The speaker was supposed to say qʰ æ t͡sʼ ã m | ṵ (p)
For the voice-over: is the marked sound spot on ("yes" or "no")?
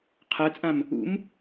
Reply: no